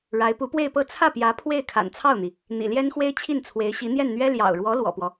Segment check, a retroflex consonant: present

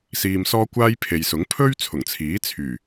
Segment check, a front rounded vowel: present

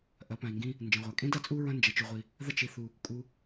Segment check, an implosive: absent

